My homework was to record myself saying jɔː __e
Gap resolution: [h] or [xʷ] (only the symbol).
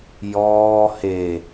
h